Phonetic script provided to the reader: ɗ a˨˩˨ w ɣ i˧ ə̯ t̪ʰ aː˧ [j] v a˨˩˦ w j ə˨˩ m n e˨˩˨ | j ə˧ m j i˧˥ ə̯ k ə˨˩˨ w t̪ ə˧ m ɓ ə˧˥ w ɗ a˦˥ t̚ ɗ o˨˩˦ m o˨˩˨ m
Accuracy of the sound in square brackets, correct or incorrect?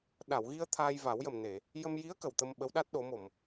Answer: correct